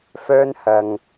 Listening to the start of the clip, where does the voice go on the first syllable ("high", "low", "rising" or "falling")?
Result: high